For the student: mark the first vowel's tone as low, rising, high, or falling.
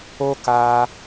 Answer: high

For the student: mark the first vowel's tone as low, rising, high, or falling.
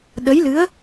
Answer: rising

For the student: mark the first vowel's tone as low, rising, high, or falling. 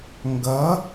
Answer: rising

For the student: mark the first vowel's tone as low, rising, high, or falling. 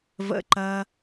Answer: low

